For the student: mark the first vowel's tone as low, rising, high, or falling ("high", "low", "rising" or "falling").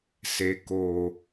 low